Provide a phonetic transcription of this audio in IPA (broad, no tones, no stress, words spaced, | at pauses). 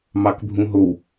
mɑkbʱũɦow